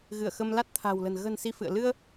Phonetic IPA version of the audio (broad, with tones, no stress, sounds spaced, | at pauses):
ɣ ɨ˧˩ ə̯ x ə˧ m l a˦˥ t̚ t̪ʰ a̤˨˩ w l ə̤˨˩ n ɣ ə̤˨˩ n s i˧ f ɨ̰˧˨ ə̯ l ɨ˧ ə̯